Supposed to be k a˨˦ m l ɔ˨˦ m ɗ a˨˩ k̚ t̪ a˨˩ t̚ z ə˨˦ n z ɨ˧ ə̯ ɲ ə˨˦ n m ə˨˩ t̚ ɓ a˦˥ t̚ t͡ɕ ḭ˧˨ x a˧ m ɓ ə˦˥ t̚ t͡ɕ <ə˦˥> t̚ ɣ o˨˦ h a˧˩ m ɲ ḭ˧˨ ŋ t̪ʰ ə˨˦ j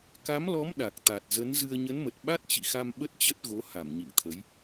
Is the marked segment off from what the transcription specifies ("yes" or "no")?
no